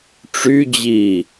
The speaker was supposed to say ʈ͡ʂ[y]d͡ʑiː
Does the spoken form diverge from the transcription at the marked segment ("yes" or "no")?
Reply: no